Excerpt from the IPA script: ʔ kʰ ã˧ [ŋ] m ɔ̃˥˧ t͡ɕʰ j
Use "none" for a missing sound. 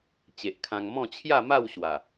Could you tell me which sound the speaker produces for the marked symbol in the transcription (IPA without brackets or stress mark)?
ŋ